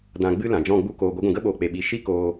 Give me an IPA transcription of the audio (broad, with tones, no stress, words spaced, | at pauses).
dã˨ ɡ͡bɨ˧ lã˨d͡ʒɔ̃˦˨ɡ͡bu˦koː˧ ɡʷə˨˦ɡʷũ˨ɡə˦ɓoː˨ k͡pe˨ ɓi˨ ʃi˦koː˧